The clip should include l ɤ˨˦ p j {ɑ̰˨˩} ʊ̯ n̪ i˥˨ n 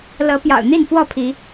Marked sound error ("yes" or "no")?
no